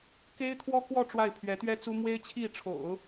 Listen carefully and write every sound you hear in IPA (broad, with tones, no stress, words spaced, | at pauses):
ke˥ɪ̯t̪ʰwɔ˥kwɔ˥˧ ʈ͡ʂwa˥˩ɪ̯pʰɥɛ˧˥t̪ɥɛ˥t͡su˥ mwe˥ɪ̯t͡ɕʰi˥˩ʈ͡ʂʰo̰˨˩˦ʊ̯